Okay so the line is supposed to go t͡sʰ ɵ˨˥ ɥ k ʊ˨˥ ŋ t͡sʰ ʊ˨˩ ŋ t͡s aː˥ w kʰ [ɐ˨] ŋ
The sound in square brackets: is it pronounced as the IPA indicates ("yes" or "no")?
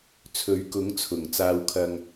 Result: no